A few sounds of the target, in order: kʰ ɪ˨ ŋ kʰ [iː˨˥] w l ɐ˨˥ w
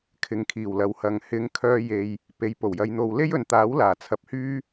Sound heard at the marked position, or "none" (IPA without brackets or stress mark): iː˨˩